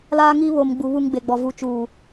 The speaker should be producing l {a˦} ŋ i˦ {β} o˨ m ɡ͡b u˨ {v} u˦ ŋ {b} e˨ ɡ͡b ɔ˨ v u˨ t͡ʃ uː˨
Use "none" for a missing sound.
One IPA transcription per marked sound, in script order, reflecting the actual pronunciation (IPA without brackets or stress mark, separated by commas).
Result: aː˦, β, β, ɡ͡b